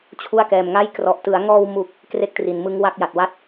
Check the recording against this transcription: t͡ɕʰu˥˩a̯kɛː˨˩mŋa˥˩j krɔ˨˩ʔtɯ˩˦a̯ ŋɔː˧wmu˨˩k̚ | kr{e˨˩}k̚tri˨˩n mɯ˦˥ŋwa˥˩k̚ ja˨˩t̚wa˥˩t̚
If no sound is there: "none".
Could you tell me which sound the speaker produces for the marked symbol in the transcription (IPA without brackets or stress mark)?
e˥˩